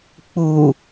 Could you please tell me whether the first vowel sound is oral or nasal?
oral